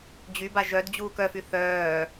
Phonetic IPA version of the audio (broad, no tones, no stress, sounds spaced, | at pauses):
d͡ʑ y b a ʒ œ d d͡ʑ uː k œ f y θ œː